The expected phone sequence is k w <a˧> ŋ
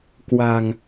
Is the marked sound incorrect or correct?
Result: incorrect